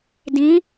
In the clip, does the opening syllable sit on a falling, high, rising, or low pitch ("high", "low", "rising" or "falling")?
rising